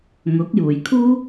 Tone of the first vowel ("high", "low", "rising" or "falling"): rising